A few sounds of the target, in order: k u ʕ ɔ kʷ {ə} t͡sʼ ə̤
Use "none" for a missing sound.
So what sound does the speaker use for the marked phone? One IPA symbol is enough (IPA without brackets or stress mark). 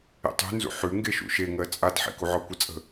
ə